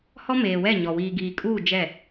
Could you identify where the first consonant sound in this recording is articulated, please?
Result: glottal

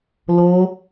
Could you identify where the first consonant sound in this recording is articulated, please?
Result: alveolar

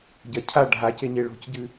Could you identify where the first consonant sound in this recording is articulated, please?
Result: palatal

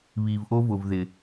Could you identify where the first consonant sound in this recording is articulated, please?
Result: labial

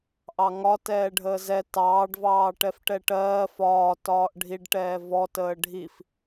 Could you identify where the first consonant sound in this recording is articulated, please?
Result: glottal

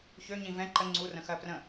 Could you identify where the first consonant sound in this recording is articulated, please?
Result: palatal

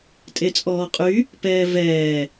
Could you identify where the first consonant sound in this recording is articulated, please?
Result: alveolar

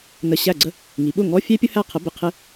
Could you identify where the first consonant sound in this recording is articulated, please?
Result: alveolar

